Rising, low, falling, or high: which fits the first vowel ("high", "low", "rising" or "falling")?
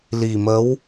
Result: low